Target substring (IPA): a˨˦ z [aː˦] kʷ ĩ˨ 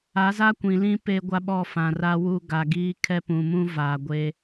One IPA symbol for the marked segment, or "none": a˦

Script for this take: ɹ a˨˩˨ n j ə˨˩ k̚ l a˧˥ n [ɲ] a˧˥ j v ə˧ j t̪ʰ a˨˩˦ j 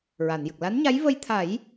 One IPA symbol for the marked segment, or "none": ɲ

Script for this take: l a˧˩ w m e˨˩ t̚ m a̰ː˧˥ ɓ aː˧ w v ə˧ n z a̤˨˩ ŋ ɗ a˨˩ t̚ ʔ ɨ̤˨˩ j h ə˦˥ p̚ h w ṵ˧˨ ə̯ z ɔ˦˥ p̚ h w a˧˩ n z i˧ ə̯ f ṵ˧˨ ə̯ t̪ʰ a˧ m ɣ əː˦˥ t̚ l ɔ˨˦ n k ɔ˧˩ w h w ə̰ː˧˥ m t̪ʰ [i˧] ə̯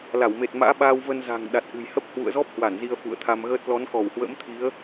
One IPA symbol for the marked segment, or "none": i˨˦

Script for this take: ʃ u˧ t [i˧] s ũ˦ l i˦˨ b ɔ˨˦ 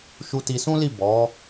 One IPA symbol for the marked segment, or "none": i˧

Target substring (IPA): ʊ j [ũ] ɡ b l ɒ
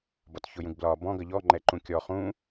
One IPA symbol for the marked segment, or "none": ũ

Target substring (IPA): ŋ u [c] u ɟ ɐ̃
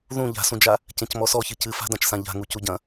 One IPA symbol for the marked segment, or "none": c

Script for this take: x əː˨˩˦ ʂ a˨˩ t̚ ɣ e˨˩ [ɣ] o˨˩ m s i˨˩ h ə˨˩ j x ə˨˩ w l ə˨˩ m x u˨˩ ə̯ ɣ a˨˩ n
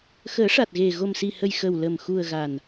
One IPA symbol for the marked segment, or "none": ɣ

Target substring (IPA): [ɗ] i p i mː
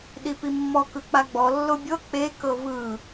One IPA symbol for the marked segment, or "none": ɗ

